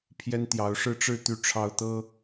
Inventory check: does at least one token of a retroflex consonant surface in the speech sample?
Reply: yes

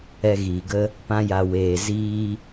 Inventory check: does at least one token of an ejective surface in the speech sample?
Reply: no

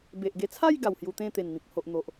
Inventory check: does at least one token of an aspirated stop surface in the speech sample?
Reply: yes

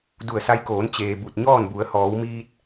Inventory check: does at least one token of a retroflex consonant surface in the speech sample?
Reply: no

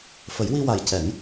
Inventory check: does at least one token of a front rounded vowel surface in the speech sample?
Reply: no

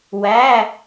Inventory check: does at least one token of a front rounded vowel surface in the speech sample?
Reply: no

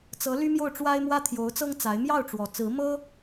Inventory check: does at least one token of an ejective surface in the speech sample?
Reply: no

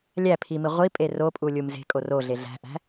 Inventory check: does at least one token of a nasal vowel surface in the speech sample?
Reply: no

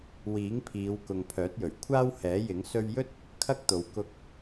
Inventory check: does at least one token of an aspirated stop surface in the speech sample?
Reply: yes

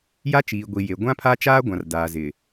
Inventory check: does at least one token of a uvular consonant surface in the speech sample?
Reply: no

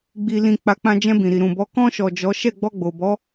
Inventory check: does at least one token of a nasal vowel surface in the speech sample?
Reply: yes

